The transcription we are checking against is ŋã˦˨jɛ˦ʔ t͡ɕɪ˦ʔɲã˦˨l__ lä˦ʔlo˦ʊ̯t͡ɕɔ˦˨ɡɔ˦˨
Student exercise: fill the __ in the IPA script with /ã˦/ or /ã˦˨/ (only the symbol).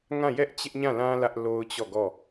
ã˦